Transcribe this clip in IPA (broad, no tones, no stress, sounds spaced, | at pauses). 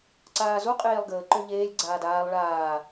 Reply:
ǀ aː z u qʼ eː lˠ ɡ əː ǃ ø ʎ eː lʲ ɡ͡ǀ aː d aː lˠ ɭ aː